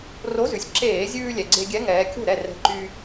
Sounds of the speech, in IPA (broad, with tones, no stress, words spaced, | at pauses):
ro˨˥zʉ˩sʲ ǁeː˧˩˧zʲʉː˧ lʲɛ˩ɡ͡ǀe˧ɡʲɛ˨˥ ŋɛː˨˥ kʲo̤˥˩ɾɛ˥˩ rɛ̤˨˥ǃyː˧